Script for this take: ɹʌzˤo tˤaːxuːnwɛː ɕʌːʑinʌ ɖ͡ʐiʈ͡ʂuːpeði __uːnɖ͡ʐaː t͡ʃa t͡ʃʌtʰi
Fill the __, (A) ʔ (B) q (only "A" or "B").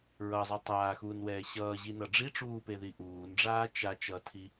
A